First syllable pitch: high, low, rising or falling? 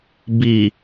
low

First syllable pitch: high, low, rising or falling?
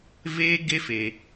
high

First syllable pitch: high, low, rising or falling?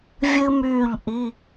high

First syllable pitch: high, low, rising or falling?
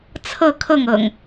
falling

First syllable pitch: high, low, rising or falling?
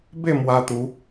falling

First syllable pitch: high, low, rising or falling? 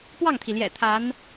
falling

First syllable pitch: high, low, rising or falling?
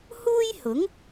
high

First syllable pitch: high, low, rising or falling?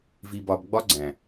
low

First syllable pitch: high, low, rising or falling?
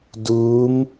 rising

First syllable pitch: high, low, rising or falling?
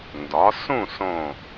rising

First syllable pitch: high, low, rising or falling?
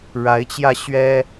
rising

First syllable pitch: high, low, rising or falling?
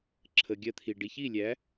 low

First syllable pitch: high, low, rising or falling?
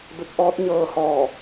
rising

